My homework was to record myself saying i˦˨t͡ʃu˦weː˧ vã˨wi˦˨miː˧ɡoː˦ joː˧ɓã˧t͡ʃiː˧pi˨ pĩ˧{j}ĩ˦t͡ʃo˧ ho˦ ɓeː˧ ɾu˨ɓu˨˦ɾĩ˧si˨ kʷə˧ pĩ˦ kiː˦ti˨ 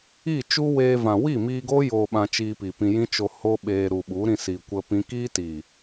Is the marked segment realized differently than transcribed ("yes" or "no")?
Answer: no